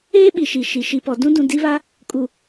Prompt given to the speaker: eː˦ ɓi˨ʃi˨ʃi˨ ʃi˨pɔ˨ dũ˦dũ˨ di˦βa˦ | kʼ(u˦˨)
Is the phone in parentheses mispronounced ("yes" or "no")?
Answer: yes